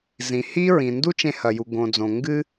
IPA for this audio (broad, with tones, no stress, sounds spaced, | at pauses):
z ĩ˩ h i˥ ɹ ĩ˩ n d u˥ t͡ʃ ẽ˧ h ɐ˩ j u˩ ɡ õ˩ d͡z õ˩ ŋ ɡ ɨ˧